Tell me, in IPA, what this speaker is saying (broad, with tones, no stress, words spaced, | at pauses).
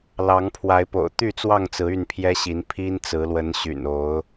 lɑ˨˦ŋpʰwa˨˦ɪ̯po̰˨˩ʊ̯ t̪y˥˨t͡swɑ˥˨ŋt͡sɹ̩˨˦ y˥˨npʰjɛ˦ ɕi˨˦n pʰi˦nt͡sɹ̩˨˦lwə˨˦n ɕy̰˨˩no˨˦ʊ̯